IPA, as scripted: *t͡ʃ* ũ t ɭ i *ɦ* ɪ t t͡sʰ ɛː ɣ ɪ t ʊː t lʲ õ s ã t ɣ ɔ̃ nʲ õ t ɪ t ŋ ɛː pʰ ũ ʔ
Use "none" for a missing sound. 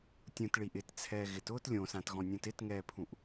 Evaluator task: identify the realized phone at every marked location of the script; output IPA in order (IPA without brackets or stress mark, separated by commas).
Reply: tʲ, ʔ